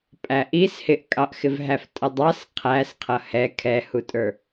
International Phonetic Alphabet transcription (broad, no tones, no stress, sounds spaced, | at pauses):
pʼ æ ʔ i s h ɪ ʔ kʼ ɑ ʔ x ɪ v ɦ æ f tʼ ə dˤ ɑ s qʰ æ s qʰ ʌ h ɛ kʰ ɛ h u tʼ ə˞